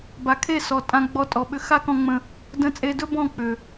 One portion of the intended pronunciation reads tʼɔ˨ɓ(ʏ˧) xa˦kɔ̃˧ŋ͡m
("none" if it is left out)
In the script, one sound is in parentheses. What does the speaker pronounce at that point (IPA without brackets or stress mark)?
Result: ʏ˧